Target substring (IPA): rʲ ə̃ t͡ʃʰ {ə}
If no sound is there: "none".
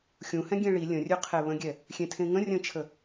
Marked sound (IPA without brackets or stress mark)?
ə